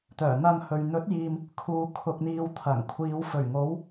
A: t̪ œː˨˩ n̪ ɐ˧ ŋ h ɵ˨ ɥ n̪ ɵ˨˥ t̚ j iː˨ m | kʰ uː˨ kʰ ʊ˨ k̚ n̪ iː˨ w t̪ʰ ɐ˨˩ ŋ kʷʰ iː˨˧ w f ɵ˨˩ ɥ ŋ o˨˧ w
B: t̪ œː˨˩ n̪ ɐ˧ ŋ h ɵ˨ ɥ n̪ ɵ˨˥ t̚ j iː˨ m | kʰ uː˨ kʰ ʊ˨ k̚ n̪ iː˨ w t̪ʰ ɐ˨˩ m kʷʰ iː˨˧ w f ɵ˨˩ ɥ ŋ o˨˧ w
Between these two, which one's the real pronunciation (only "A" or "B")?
A